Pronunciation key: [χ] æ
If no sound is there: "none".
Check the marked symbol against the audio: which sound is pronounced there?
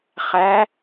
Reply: χ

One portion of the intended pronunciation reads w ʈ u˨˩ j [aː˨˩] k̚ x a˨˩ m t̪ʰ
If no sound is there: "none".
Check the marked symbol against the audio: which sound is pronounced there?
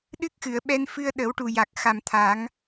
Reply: a˨˩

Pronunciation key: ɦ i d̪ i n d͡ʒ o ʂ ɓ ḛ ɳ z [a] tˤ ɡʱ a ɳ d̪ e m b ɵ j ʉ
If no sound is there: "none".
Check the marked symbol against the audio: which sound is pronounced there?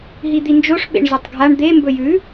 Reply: ɐ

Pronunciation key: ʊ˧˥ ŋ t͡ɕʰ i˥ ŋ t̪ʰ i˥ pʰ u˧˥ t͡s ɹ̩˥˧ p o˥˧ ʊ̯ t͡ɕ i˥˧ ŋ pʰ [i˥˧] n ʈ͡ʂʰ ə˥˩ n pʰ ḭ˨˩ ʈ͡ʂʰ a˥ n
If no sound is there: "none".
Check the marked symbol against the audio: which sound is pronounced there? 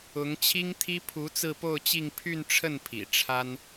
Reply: y˥˧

